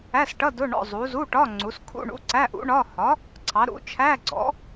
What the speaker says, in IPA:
æ˧˥˧sʈʌ˧˥˧ dʊ˧˥˧ ɳɔ̰˧˥˧zˤu˨˥ zu˧˥˧ʈɒ˧˥˧ ŋ͡ǀu˨˥s kʰṵ˧˥˧ɳṵ˧˥˧ǀæ˧˥˧ʔṵ˨˥ ɳɒ˧˥˧ hɒ˨˥ | ǀʰɑ˨˥ɾṵ˨˥ t͡ʃʰæ˧˥˧ɡ͡ǀɔ̰˨˥

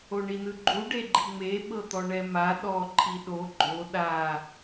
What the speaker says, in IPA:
oɳinɯɡ͡ǃu ɖeɡ͡ǃiŋ͡me ɓɤt̪ɔɳɛma ɗɔ ǃʰiɗo ɡ͡ǃo ɗa

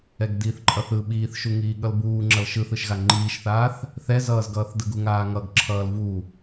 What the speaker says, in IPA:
ɛɡdiːθǃʼʌθɯ ɓiːθʃuŋiː ɠʌlbuːŋ͡ǁʌl ʃɯθɯʃɣa ŋ͡ǃiːʃθaːθ | θɛzʌːzɡʌːθ dɯɡuŋaːŋʌɡ ǁʰʌːlvu

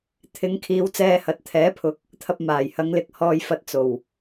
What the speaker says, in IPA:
t̪ʰɪ˨˧ŋkʰiː˨˧w t͡sɛː˧hɐ˨˥t̚ t̪ʰɛː˨˥pʰʊ˨˥k̚ | t̪ʰɐ˧p̚ maː˨˩j hɐ˨˧ŋlɪ˨k̚ hɔː˧jfɐ˧t̚ t͡so˨˩w

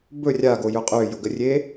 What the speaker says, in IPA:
bɵ rʲaɡojɵ qʼøjʊɡərʲe

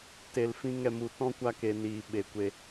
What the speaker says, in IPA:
te˨lfĩ˧ŋ ɛ˨mu˨tɔ̃˦ kʷa˧ke˨ niː˨ɓe˨kʷe˧

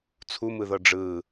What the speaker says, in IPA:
t͡sʰumɯðɤ ɖ͡ʐɯ

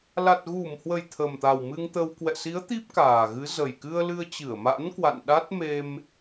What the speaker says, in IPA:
la˨˩t̚ɣu˧˩mhwə˨˩j t̪ʰə˨˩mt̪a˨˩w mɨ˧ŋt̪ə˧w kwɛ̰˧˨si˨˦ə̯ t̪i˦˥p̚kaː˨˩ɣɨ˨˦ zə˨˩jkɨ˧ə̯lɨ˧ə̯ t͡ɕɨ˧˩ə̯ma̰˧˥nkwa̰˧˨n ɗa˦˥t̚me˧m

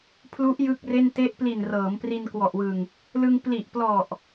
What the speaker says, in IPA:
pʰlu˦˥ʔ jɯ˥˩k̚re˥˩n te˦˥ʔpli˨˩n rɤː˩˦mpri˧nkwɔ˨˩ʔwɯ˨˩ŋ | lɯ˧ŋ pli˨˩ʔplɔ˨˩ʔ

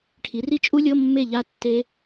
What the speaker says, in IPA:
ʈʰi˩˥ri˦˥t͡ʃʼu˦˥lʲɤ˧˥˧ mːe˥˨ʎa˦˥ tːe˦˥

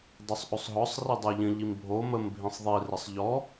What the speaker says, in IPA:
dˤosˤʔosˤɦɔsˤ ridˤə˞ʎə̃ ʎimbʱo məm bʱĩsˤðˤi rəsˤʎɔ

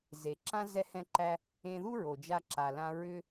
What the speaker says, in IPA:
ze˩ǁã˥ zɛ˥hɛ̃˥ǃæ˥ | ẽ˧ðu˥ɹo˩ d͡ʒa˧ǁa˩lã˧ ɹʏ˥

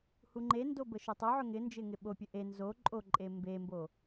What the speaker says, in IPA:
huŋ͡ǃendo bəʃɵtˤoʕɵ ŋɪnd͡ʒɪ ŋɪɓopʲə ʔe nzo ǃʼoǃʼe mbembo

